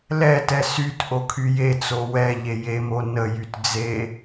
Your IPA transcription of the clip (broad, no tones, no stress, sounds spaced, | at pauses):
l ɛ t ɛ s y t ʔ o kʰ y j e t͡s o w ɛ ʎ e j e m o n ə j y t d͡z e